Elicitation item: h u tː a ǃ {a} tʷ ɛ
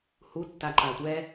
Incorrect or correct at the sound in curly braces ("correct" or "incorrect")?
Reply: correct